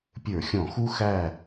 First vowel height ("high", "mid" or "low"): mid